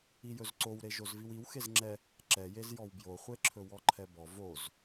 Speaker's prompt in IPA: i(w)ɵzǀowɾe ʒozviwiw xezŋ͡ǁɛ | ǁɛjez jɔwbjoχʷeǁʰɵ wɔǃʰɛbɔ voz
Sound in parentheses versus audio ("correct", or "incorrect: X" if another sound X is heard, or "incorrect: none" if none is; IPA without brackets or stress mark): incorrect: j